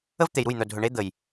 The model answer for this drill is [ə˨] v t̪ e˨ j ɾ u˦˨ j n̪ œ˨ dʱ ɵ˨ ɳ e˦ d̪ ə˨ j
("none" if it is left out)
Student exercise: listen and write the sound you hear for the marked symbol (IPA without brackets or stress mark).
ə˦